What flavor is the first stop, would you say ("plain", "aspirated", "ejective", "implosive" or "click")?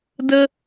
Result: plain